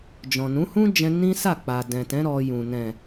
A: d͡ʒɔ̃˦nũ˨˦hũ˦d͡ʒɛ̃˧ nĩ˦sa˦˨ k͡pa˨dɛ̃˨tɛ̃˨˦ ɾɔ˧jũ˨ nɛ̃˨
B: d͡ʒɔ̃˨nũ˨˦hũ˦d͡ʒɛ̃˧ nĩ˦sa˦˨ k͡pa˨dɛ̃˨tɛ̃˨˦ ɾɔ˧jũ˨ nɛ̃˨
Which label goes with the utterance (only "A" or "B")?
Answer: B